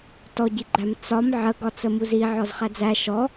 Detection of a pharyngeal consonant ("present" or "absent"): present